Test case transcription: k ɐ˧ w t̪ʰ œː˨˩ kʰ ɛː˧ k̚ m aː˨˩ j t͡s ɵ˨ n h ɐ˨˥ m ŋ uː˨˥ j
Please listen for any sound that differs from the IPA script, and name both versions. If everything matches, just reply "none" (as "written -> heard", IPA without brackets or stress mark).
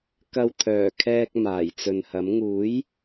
none